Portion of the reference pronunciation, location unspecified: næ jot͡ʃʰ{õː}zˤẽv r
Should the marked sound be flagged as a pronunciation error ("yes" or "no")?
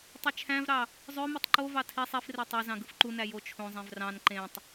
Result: yes